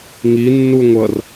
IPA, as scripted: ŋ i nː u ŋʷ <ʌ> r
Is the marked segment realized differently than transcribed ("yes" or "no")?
no